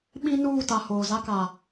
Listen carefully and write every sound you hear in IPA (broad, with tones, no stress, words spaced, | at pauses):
ɓĩ˦nuː˦˨ta˨ hoː˨ za˦ka˨